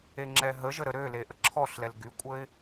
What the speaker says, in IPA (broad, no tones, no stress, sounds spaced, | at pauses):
e ŋ͡ǁ ɛ ɦ ə ʒ ə ɾ ə ɾ ø l e ʔ ə ǁʰ ɔ ɬ l ɛ l ɡ y kʷʼ ə ɪ̯